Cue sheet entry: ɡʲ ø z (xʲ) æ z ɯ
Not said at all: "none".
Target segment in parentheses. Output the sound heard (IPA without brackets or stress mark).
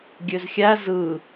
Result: xʲ